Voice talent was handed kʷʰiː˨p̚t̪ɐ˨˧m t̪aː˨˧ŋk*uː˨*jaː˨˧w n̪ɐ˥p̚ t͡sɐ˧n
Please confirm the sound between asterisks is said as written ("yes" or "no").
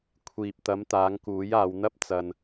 no